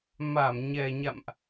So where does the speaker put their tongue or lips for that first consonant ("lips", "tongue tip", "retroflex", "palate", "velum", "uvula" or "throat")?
lips